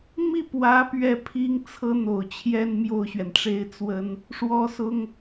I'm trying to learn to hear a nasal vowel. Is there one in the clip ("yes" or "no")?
no